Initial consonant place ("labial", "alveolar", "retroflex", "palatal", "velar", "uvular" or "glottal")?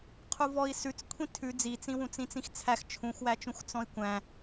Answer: uvular